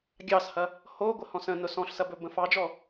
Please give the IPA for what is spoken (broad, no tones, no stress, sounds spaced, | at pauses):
ɡʲ ɑ s h ɐ | h o ɡʷ ə h ɔ̃ s ə̃ n ʊ s ɔ̃ ɬ s ɐ b ɵ b ə̃ f ɑ d͡ʒ ɔ